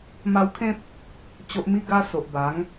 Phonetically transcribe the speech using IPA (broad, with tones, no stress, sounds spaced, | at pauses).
m a˧ w kʰ ẽ˦ p̚ | t͡ɕ o˨ ʔ m i˧ ɡ a˧ s o˨ ʔ b a˨˦ ŋ